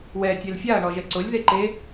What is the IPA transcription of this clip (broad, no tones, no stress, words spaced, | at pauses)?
wɛ tʲelfʲaɐ̯ ɳɔʒɛǀʊlʲ ðeǃe